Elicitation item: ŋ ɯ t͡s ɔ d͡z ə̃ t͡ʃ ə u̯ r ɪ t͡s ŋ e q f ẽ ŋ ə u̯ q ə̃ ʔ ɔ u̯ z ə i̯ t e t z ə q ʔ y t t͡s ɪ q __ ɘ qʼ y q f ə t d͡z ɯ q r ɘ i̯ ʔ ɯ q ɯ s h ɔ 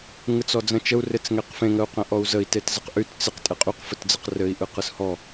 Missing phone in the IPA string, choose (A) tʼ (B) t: A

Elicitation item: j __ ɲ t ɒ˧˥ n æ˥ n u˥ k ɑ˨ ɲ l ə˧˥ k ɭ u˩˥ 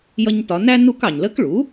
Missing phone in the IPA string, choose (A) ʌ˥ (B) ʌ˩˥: A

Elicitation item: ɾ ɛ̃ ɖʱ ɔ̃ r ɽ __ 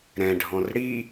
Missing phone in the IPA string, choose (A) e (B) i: B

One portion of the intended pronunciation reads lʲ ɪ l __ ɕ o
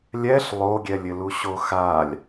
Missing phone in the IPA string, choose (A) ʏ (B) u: B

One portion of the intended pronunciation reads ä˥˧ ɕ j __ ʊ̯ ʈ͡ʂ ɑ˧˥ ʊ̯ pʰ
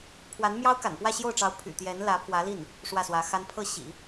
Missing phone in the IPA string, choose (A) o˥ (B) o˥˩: B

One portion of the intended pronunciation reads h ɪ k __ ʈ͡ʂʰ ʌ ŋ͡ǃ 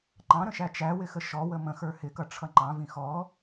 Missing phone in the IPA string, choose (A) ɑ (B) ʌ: B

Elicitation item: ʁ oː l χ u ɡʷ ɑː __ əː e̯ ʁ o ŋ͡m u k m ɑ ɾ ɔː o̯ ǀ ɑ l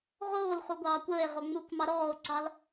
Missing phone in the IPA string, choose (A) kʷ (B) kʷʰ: A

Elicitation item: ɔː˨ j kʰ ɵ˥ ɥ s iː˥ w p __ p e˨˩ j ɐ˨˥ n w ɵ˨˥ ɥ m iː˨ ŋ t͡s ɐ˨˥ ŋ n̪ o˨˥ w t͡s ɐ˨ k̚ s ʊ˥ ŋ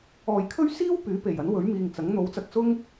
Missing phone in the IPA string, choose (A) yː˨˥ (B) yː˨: A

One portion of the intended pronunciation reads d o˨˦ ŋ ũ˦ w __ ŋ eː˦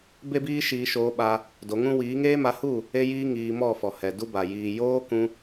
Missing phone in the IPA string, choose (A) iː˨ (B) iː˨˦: B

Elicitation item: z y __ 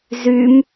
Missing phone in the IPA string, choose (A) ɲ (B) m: B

